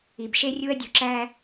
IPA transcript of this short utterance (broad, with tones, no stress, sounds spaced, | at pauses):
i˨ b ʃ e˦ rʲ u˦ ɐ̯ dʲ u˨ ǁ æ˦